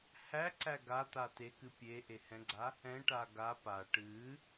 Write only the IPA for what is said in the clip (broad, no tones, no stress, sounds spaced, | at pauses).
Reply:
h æ ǀ æ ɡ a t̪ a t e k ɨ pʲ e ʔ e h ɛ̃ ɡ͡ǀ a | ɛ̃ ʈ a ɡ a p a ʈ ɨ